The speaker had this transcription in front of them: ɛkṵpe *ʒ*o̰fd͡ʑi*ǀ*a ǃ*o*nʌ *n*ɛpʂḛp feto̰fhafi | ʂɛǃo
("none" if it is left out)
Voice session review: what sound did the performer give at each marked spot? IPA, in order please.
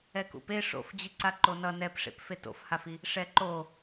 ʂ, ǀ, o, n

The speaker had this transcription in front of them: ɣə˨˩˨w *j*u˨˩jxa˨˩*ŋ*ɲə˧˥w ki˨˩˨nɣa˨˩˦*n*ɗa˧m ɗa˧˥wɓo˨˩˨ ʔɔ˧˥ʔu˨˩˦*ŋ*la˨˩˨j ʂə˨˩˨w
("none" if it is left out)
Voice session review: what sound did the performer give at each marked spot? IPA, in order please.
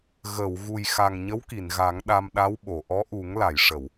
ɣ, ŋ, ŋ, ŋ

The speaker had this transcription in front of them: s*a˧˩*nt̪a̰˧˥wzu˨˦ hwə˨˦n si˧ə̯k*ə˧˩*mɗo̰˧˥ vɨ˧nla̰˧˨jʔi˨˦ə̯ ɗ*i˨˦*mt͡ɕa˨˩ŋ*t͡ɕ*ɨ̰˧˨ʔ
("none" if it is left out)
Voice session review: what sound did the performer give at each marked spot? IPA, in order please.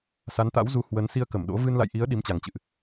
a˨˦, ə˧˩, i˨˦, t͡ɕ

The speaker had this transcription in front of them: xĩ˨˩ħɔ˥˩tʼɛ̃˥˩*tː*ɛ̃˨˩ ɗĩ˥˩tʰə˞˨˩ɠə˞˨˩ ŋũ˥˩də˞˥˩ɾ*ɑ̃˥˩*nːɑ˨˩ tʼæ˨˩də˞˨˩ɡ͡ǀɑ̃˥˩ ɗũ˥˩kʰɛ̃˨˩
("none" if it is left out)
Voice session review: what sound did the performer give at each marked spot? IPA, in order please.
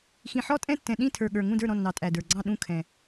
tː, ɔ̃˥˩

